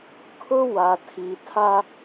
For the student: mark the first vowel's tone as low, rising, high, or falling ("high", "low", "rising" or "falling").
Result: high